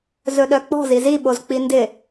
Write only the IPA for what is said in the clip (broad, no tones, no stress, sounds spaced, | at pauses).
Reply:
z ɵ ɗ œ k͡p ɔ̤ z i z i ɓ o z k͡p i n d ɪ